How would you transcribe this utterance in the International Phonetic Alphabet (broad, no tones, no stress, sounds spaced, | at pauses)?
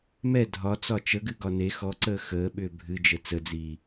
m ɛ dʱ ɒ t͡s ɒ t͡ʃ ə ɡ ɨ ɡ ɒ n e x ɔ ǀ əː x əː ɓ ʏː bʱ ɨ d͡ʒ ə t͡s ə d͡z iː